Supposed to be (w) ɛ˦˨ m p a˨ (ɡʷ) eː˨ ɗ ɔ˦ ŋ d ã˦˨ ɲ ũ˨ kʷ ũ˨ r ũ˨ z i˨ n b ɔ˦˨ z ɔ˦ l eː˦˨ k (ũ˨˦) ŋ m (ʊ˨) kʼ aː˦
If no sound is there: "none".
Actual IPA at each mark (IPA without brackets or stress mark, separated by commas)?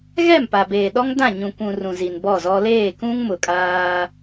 ɣ, b, ũ˦, ʊ˨